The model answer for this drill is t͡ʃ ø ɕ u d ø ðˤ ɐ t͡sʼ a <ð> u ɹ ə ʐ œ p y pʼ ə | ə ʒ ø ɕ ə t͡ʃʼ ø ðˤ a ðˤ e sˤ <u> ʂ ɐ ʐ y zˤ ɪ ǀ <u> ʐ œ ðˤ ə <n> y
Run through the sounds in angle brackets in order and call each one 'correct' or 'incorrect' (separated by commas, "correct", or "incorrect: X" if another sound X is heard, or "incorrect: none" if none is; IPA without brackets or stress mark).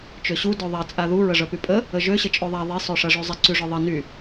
correct, incorrect: ø, incorrect: y, correct